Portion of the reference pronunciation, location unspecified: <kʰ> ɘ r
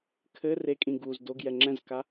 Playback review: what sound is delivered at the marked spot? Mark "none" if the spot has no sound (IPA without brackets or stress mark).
kʰ